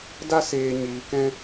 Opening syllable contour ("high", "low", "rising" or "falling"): high